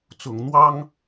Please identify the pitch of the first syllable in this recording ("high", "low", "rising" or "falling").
low